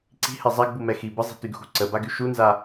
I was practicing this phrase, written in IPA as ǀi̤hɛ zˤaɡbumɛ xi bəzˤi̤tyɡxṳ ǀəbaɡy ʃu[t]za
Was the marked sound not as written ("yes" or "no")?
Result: yes